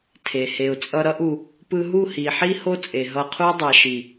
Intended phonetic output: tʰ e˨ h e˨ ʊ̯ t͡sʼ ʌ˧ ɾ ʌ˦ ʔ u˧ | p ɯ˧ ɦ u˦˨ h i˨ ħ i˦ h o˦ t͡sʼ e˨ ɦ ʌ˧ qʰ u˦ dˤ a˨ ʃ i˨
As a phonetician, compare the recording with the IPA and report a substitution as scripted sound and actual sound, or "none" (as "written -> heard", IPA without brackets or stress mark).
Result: none